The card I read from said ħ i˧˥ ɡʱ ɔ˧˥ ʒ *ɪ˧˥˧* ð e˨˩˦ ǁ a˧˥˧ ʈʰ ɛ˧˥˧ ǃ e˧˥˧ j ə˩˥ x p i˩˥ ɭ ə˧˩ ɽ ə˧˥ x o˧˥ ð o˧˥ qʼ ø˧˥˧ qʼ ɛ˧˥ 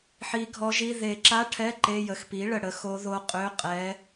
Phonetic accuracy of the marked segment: incorrect: i˧˥˧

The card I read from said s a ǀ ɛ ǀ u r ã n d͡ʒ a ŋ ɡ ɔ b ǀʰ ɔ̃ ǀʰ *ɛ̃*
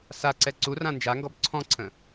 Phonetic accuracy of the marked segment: incorrect: ə̃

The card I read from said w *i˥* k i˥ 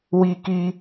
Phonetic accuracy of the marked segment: correct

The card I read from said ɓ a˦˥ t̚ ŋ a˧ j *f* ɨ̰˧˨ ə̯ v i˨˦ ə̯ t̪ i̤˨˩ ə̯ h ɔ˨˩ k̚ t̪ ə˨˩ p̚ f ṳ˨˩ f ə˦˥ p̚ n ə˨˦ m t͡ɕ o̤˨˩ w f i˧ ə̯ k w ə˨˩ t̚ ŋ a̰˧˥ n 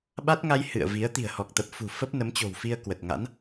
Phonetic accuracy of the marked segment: incorrect: h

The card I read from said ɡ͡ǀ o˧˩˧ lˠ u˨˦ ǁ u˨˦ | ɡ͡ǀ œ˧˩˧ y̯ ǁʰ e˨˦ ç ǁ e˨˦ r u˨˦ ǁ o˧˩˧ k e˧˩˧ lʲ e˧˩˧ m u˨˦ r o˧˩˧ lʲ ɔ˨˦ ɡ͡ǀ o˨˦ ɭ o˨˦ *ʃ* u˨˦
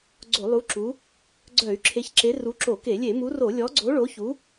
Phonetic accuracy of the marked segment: incorrect: ç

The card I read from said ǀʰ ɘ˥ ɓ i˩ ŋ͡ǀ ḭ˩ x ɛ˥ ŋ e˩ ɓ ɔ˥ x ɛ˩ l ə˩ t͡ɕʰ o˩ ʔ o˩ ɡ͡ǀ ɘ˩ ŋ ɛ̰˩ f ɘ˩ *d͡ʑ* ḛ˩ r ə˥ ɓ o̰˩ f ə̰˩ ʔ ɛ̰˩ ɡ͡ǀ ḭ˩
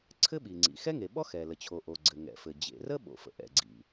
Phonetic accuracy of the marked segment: correct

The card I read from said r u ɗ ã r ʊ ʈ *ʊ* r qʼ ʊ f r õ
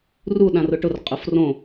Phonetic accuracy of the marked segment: correct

